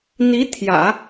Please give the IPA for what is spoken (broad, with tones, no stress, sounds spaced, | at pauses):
n̪ i˧˥ t̪ʰ j ä̰˨˩˦